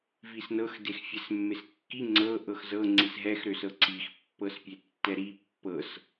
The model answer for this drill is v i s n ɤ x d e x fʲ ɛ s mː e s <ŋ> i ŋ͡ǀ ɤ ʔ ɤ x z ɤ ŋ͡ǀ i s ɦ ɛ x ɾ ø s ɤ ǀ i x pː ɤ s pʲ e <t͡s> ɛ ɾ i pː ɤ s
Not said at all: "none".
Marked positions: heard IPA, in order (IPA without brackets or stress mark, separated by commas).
kː, tː